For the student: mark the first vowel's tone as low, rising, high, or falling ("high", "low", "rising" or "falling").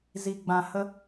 low